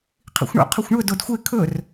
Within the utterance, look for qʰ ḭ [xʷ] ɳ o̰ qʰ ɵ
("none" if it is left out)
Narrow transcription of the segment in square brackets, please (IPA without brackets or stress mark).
xʷ